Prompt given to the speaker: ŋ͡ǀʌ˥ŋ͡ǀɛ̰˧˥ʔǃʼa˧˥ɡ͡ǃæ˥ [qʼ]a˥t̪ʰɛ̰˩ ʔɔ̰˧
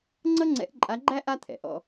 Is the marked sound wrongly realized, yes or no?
yes